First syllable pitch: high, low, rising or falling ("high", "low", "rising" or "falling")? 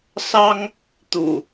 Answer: high